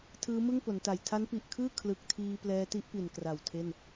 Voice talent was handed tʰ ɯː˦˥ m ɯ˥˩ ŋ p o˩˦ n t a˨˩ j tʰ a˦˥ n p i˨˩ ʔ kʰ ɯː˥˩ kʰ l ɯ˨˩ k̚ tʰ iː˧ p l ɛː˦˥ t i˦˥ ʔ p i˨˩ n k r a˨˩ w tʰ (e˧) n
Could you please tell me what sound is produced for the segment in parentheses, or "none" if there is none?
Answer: e˥˩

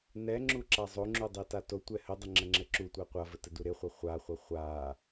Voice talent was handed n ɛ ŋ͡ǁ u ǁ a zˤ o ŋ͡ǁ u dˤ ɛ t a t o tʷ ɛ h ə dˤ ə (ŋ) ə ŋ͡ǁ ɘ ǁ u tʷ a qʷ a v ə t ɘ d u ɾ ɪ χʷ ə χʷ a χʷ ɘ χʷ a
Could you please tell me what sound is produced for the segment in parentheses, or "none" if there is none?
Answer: ŋ͡ǁ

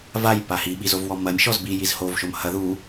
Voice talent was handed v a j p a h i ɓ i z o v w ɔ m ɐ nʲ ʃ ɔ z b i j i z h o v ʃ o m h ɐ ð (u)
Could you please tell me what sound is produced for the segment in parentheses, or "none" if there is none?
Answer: u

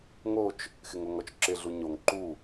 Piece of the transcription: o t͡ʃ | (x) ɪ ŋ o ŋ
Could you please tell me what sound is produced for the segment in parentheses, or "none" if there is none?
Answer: x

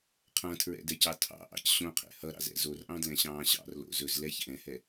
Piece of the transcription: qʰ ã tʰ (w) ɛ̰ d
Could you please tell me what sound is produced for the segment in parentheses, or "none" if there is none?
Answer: ɹ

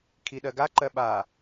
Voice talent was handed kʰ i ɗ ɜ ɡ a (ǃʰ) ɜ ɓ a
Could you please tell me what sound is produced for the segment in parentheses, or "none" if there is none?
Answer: ǃ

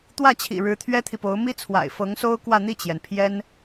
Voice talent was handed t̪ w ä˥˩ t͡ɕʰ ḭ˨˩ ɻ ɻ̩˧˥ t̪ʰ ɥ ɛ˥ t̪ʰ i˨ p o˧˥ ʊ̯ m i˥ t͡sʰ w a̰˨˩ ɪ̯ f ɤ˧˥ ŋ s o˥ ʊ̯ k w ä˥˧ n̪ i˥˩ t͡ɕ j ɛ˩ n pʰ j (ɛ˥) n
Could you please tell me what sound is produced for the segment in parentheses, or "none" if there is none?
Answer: ɛ˥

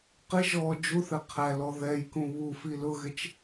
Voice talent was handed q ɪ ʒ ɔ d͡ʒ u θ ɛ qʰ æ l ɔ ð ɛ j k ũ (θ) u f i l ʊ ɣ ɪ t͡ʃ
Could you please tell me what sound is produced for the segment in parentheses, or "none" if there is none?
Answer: β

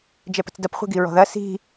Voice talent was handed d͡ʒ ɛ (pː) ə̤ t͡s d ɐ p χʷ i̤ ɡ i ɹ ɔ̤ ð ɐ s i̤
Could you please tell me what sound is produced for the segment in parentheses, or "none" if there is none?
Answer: p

